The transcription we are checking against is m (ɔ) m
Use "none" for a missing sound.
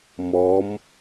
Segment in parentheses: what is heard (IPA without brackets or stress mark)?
ɔ